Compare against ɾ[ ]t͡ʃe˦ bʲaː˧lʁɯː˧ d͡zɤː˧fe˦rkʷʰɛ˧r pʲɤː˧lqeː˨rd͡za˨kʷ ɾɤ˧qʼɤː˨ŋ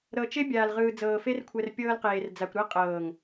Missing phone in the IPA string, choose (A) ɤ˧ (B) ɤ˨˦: A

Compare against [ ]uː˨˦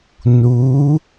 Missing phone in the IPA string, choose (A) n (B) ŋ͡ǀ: A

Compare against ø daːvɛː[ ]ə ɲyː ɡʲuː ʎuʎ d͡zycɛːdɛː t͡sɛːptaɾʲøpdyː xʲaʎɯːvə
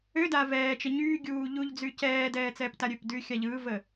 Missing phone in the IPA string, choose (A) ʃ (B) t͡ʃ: B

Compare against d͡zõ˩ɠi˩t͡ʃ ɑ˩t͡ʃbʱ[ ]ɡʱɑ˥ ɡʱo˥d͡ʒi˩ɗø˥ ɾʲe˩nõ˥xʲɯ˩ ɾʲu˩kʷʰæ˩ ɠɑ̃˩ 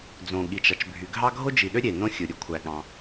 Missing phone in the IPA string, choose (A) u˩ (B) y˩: B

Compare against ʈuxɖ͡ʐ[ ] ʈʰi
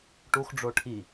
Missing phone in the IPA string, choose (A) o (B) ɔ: A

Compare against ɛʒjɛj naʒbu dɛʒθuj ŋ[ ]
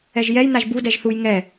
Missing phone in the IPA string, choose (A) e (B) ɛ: B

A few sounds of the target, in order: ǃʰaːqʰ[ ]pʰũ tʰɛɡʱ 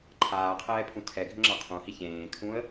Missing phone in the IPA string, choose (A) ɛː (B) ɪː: A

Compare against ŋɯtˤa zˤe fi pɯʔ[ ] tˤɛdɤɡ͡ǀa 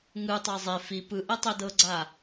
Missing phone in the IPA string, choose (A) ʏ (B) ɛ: B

